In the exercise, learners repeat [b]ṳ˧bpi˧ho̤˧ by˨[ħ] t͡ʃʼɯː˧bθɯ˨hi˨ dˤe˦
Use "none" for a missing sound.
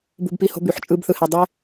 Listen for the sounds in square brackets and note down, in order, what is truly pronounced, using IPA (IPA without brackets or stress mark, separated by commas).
b, ħ